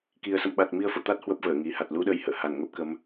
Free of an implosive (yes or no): no